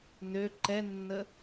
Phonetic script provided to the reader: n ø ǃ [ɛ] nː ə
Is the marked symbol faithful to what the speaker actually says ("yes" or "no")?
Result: yes